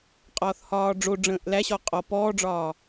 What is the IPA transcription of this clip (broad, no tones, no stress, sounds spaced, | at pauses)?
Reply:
qʼ ɒː θ h ɒː ɖ͡ʐ o ɖ͡ʐ ə̃ː ʔ l æ ɕ ɔ qʼ ɔ p ɔː ɖ͡ʐ ɒː